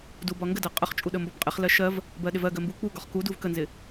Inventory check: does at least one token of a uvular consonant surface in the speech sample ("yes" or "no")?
yes